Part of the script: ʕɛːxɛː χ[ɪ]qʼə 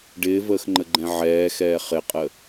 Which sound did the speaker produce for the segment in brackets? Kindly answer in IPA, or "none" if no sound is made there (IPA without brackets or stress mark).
ɪ